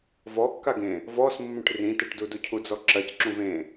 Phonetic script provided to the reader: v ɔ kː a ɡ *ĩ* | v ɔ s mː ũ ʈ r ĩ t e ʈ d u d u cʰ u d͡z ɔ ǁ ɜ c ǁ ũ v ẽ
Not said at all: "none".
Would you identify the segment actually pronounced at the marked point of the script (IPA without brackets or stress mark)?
ẽ